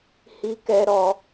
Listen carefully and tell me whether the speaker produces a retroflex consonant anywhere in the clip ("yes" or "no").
no